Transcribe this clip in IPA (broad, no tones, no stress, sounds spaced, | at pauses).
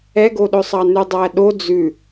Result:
ɛ ɡ o ɗ ɵ sˤ ɑ n ʉ dˤ æ ɗ o d͡z ʉ